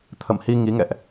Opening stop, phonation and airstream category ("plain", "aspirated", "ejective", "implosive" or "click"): aspirated